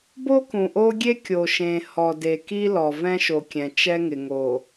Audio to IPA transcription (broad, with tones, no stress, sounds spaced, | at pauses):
b o˦ k ũ˨ ʔ o˦ ɡʲ e˦ kʲ o˨ ʃ ẽ˨ h ɔ˨ d e˨ k i˦ l ɔ˨ v ɛ̃˦ ʃ o˨ kʲ ɛ̃˨ t͡ʃ ɛ˦ ŋ ɪ˨ ŋ o˨